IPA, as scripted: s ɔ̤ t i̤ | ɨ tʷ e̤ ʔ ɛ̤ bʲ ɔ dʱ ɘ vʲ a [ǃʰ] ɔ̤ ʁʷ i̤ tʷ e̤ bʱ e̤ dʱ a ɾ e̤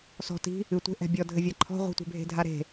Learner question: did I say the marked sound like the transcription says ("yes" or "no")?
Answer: yes